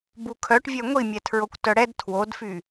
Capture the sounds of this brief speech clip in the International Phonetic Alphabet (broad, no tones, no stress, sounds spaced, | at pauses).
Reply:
b u kʰ œ ʈ vʲ œ ŋʷ i mʲ ɛ tʰ ɹ o kʷ t œ ɽ ɛ d tʰ w o d f y